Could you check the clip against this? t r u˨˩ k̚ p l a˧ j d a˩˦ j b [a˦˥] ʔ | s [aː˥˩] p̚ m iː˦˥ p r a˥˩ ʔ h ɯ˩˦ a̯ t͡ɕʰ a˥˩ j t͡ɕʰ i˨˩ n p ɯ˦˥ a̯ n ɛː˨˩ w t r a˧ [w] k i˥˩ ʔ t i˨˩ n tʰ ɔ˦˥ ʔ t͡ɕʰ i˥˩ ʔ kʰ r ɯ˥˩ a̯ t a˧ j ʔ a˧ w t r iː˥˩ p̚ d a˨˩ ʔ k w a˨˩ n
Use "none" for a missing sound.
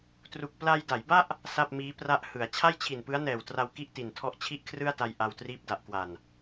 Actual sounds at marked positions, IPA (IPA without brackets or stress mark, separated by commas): a˥˩, a˥˩, w